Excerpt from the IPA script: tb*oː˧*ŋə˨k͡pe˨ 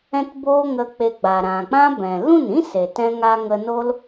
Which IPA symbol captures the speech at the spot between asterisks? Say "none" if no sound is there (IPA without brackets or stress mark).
oː˧